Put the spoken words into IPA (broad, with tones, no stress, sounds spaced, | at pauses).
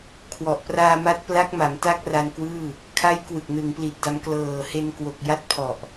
kʰ w ɔ˨˩ ʔ p r aː˧ m a˦˥ t̚ p l a˦˥ k̚ m a˩˦ m t a˥˩ k̚ r a˧ n k w ɯː˥˩ | kʰ a˦˥ j k w ɯ˨˩ k̚ n ɯ˩˦ ŋ p l i˨˩ t̚ d a˧ m k l ɤː˨˩ h e˧ n k w o˨˩ k̚ j a˦˥ t̚ pʰ ɔ˨˩ ʔ